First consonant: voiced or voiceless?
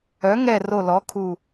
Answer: voiced